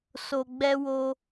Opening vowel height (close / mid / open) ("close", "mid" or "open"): mid